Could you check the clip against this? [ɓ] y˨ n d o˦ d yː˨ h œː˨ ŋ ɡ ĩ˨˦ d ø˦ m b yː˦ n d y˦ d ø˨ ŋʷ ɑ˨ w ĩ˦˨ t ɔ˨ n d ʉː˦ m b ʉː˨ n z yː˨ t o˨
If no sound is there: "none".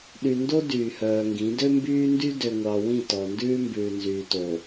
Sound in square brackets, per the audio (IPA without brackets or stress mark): ɗ